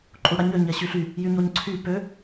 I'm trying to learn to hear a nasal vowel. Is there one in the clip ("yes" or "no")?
no